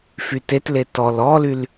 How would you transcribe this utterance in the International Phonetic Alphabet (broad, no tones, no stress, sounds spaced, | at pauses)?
f y t e t l e t ɔ l ɔ l y l